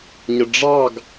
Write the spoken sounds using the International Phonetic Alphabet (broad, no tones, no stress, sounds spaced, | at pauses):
ɲ ə ɖ͡ʐ ɑ ɡ